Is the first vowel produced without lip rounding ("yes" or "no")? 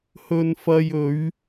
no